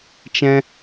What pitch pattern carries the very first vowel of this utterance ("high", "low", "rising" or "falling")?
high